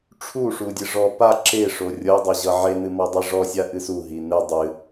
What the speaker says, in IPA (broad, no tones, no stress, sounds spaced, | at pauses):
ʈ͡ʂʰ u ʂ u dʲ ɨ ʐ ɔ p a ǁ e ʂ o rʲ ɤ dˤ ʌ ʑ ʌ ʕ e n̪ ɨ m ɔ dˤ i ʐ ɔ sʲ a ʔ ɨ s u ɦ i n̪ ɨ dˤ ɨ